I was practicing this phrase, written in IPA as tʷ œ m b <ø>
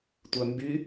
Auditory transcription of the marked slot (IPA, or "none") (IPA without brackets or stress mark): y